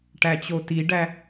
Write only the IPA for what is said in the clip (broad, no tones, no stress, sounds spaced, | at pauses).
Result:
ʈ æ t͡ɕ o t i ɖ æ